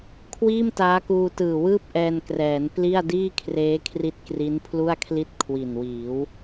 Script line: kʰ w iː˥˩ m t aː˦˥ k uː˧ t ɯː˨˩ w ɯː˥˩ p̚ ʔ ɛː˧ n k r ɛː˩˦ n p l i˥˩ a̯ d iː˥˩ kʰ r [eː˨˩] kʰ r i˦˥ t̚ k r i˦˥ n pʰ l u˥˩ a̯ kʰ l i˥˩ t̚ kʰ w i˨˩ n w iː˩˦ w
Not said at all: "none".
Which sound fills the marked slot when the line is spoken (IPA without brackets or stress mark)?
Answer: eː˦˥